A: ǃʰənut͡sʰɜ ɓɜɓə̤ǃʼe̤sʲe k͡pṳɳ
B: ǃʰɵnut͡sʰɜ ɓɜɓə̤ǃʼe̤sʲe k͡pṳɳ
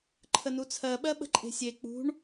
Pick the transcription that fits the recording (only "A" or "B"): A